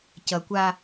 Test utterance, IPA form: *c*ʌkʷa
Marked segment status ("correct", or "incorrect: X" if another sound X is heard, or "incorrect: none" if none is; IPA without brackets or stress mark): correct